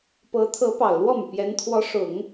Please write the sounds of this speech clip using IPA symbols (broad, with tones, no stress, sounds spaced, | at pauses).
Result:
p ɤ˧˥ t̪ʰ ɤ˧˥ p ɑ˨˩ ʊ̯ l w ɔ˥˩ m y˩ p j ɛ˧˥ n t̪ʰ w ɔ˧˥ ʂ ʊ˨˩˦ ŋ